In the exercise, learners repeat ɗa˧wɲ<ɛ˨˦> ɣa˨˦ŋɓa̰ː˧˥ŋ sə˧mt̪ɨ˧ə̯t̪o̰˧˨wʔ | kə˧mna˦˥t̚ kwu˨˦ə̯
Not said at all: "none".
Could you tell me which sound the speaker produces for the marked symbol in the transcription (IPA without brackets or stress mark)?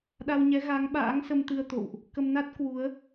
ɛ˨˦